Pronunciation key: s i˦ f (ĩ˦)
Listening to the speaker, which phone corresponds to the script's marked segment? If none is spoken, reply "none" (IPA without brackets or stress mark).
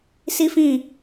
ĩ˦˨